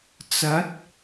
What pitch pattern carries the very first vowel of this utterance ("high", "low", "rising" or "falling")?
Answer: rising